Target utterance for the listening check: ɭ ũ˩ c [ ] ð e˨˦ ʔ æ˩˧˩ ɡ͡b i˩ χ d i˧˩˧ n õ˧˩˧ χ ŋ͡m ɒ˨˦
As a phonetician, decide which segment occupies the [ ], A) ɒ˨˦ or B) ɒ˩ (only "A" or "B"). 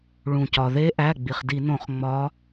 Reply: B